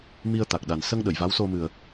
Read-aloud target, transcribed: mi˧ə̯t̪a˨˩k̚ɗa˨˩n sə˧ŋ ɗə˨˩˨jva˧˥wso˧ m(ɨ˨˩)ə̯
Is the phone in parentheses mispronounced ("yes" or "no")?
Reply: no